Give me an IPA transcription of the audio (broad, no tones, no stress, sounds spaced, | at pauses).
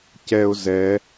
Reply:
c ɛ ʊ̯ z ɛ